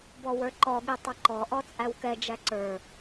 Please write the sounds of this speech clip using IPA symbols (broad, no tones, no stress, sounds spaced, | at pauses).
b ɔ w ə˞ ǃ ɔ ɠ i tˤ ʌ ǃ ɔ ʔ ɔ t͡sʼ æ w k ɛ d͡ʒ æ ǀ ə˞